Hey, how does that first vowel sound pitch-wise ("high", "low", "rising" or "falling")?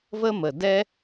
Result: high